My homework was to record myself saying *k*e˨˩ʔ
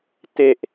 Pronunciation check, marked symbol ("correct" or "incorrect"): incorrect